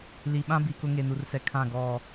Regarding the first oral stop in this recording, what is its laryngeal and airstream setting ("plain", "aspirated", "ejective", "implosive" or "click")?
implosive